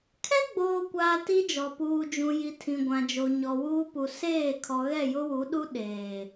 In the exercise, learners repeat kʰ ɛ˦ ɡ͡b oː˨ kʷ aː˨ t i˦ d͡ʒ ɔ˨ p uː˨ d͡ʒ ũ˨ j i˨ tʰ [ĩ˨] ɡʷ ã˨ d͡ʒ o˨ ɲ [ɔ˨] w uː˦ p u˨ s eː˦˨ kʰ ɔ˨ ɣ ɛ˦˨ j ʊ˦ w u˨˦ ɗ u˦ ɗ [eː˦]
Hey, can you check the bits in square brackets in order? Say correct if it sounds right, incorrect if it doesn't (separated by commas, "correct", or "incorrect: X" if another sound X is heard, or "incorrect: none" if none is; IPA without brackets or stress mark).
correct, correct, incorrect: eː˨